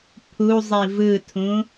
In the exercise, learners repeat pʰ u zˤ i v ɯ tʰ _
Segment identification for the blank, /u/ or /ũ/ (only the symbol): ũ